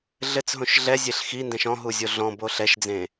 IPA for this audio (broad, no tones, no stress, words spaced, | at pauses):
ɮɘt͡sɦõʃ ɮɛzʲeɬ xindɛ̃ʃ ɔ̃ɦuzʲo ɮɔ̃bo ɬɛʃd͡zẽ